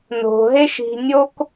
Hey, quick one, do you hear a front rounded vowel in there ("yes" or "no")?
no